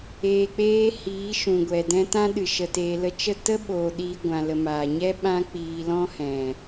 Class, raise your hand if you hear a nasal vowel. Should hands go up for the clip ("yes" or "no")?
yes